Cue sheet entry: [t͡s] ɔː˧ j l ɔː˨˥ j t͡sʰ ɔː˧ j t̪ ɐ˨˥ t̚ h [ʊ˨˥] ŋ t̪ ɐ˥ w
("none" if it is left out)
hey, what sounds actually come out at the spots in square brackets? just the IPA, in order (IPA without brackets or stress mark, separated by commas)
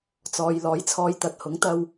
t͡s, ʊ˨˥